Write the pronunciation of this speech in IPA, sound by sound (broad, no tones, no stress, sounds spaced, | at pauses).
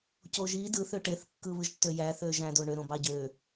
c o ʒ i d ɯ θ ø ʈ e θ kː ɯ β ɯ ʒ tː ø j æ θ ø ʒ æ̃ d o ɳ ø ɾ õ b ɑ ɟ ø